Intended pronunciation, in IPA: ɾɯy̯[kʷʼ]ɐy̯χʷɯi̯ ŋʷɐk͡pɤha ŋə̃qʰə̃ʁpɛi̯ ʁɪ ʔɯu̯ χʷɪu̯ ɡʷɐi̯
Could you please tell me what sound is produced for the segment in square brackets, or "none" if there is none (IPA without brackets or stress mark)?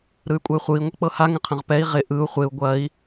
kʷʼ